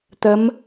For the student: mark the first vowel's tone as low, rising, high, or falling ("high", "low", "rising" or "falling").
rising